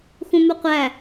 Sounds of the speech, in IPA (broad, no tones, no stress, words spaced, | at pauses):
xũmuqʷæ